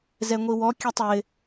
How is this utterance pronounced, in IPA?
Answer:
zɛŋʷiwɔ kʲɛtˤwɪ

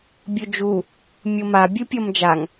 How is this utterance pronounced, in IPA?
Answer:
bʲod͡ʒu | mʲoma bʲɯpʲʌmd͡ʒaŋ

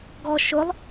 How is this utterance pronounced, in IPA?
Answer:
ɡɔ ʃʊlˠ

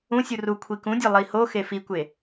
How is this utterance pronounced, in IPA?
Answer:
ũsʲu ru kʷʰikũdʲɒ lˠihoxe fikʷe

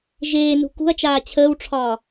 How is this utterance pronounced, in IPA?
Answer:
ʒeːnṳ kṳɐ̯t͡ʃaː t͡ɕʰəːwʈ͡ʂʰɒː

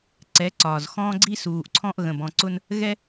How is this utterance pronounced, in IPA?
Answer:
ǀɛ˨˦ǀɒː˨zxɔ̃ː˦ɡ͡ǀi˦ suː˨ʔǀʰɔ̃˦ʔ ɣə̃˨bɔ̃˨ǀʊ˦n | ɣɛ˦

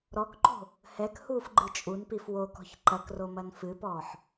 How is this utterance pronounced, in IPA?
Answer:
ɾɔkǃo̤ | hɛkhuːfɡ͡ǃɨ t͡ʃʼunpif wokɔ̤ç ǃɐkromɐn fɨpɔːħ

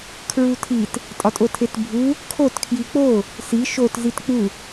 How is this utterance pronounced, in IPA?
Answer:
kʰɹutʰit | tʼɒtʼotʰetbʱu | kʰot kʰjik͡po | si ʃot zitk͡pu

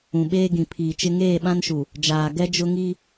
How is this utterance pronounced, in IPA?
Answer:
ũ˨ɓeː˦ɡĩ˨ pʰiː˨t͡ʃɪ˦ ŋeː˦˨ɓã˦nʃu˨ | d͡ʒaː˨ɡɛ˦ d͡ʒʊ˦ŋi˦

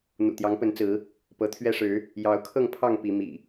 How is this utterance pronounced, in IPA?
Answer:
n̪ṵ˨˩t̪jɑ˨˦ŋpə˨˦n t͡sɹ̩˨˦ | pɤ˨˦t̪ʰɥɛ˦ʂɻ̩˨˦ | jɑ˨˦ʊ̯kʰɤ˥˨ŋpʰɑ˥˨ŋ pi˨˦mḭ˨˩

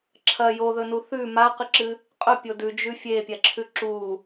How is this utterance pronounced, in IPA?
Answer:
ǁʰɐ joðɵnu θʉ maqɨǁɨ | qʼɵpʲo dʉd͡ʒʉ fʲepʲaǁʰʉ ǁu

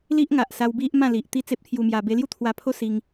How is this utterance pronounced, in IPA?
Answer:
li˦ʔŋa˨ʔsa˧w bi˦ʔmã˥˧ li˨ʔt̪i˦ t͡se˦p̚t̪ʰju˧mja˧ be˧lju˥˧t̪ʰwa˧pʰo˦ si˧ŋ

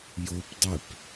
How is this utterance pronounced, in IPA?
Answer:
jopdˤep

